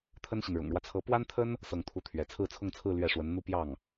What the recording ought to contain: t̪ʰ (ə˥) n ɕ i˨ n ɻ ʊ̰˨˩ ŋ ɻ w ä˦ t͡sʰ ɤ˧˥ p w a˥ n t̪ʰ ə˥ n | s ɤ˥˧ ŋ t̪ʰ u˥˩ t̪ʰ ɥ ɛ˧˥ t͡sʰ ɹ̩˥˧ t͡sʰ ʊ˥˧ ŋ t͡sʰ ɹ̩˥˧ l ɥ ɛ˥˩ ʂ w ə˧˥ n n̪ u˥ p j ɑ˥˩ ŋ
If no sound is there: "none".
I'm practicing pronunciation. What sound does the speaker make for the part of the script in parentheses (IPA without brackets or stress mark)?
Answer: ə˥